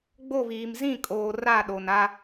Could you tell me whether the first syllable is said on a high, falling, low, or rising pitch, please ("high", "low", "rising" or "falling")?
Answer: falling